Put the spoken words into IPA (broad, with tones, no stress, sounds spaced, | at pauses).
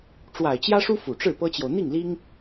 ʈ͡ʂ w a˨˩ ɪ̯ t͡ɕ j ä˥ ʂ u˥ f u˨˩ ʈ͡ʂ ɻ̩˥˩ p ɤ˥ t͡ɕ j o˨ ʊ̯ n̪ i˥˩ ŋ l i˥ ŋ